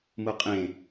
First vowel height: high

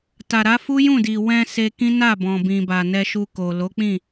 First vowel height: low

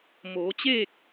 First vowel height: mid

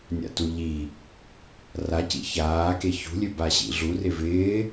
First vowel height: low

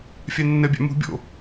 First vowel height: low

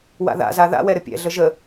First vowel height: low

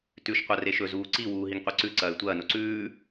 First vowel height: high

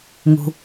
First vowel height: high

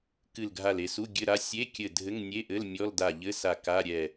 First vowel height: high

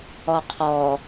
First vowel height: mid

